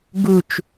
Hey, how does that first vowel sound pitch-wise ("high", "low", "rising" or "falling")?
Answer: falling